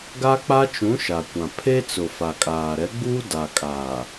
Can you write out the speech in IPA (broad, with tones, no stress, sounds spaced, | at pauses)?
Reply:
ɡ a˦ k͡p a˦ t͡ʃ ũ˨˦ ʃ a˨ kʷ ã˨ pʰ e˦ t͡s ʊ˨ f a˨ kʼ aː˨ ɾ ɛ˨˦ ɡ͡b uː˦ d a˨ kʼ aː˨